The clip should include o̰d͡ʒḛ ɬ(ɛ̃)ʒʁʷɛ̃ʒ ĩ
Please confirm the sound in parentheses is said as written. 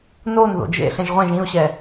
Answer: yes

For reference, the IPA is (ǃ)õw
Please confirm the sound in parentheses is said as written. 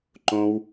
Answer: yes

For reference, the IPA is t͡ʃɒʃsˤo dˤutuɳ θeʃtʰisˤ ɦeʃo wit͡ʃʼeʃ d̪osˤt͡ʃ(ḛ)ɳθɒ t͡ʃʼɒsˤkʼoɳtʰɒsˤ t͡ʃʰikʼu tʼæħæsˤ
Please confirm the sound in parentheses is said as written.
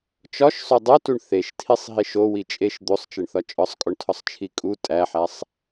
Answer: no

